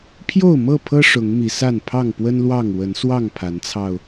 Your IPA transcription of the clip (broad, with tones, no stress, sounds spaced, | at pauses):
pʰ j o˥˨ ʊ̯ m ɤ˥˨ pʰ ɤ˦ ʂ ʊ˨˦ ŋ m i˨˦ s a˥˨ n pʰ ɑ˥˨ ŋ p w ə˦ n l w ɑ˥˨ ŋ w ə˨˦ n s w ɑ˥˨ ŋ pʰ a˨˦ n t͡sʰ ɑ˧ ʊ̯